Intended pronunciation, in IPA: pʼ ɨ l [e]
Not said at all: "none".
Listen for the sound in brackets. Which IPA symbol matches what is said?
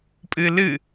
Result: ɨ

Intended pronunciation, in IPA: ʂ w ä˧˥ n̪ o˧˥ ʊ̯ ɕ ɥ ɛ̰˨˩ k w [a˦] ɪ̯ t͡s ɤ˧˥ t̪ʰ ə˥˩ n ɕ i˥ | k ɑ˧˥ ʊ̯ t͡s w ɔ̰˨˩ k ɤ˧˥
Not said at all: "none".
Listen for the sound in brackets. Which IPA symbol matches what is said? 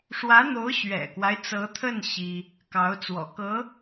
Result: a˦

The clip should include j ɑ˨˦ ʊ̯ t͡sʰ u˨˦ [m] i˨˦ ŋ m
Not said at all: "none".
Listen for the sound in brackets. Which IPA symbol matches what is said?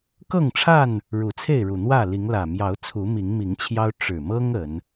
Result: m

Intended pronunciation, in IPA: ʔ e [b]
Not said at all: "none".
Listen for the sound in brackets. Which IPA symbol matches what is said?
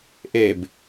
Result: b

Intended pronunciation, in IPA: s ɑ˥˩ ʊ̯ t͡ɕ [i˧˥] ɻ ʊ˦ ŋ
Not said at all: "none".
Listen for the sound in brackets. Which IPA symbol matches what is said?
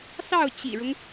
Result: ḭ˨˩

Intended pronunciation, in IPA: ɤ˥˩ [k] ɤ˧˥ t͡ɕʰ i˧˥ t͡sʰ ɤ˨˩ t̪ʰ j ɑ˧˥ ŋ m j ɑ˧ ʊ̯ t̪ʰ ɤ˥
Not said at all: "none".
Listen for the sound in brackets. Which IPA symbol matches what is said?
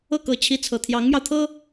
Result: k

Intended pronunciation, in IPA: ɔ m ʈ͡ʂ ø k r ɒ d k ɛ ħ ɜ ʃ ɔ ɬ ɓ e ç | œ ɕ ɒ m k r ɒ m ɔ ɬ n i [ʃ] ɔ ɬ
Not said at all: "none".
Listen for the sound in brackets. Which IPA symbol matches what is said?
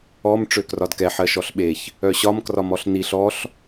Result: ɬ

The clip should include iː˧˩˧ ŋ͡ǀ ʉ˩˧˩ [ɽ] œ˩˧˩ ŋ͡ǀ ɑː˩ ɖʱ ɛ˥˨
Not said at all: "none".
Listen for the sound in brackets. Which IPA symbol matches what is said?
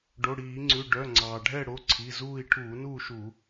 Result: ɖ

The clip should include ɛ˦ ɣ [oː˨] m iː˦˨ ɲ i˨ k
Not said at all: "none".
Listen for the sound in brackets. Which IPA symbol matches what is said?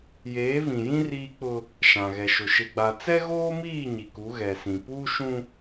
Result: oː˦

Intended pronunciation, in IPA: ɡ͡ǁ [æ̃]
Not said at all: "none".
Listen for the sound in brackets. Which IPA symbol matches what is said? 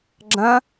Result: ɐ̃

